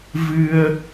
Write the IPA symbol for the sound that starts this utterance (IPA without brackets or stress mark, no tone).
v